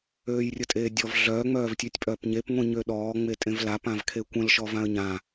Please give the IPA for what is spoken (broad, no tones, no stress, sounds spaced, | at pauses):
øː j rʲ ə tʼ eː dʲ ɔ v ɮ œ ŋ͡m œː v tʲ ø tʲ pʼ œː p ɲ e p ŋʷ ĩ ɲ ø ɗ ɔː ŋ͡m e tʼ ẽ v l a p ã v kʰ e kʷ ə̃ l ʃ ɔ v ã ə̯ ɲ ã